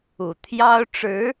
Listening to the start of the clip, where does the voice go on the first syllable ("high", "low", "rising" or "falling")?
low